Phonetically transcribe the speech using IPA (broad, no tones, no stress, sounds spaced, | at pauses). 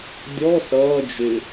dʲ ɔ s ʌː d͡ʒ ɪ